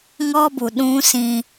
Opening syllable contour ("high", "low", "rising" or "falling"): high